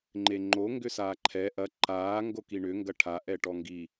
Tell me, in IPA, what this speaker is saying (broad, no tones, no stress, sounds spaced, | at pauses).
ŋ͡ǃ e ŋ͡ǃ o ŋ ɡ ʏ s aː ǃʰ ɛ ʔ ɐ ǃ aː ŋ ɡ o k i ɳ ʏ ŋ ɡ ɐ ʈʰ a ʔ ɛ ʈ ɔ ŋ ɡ i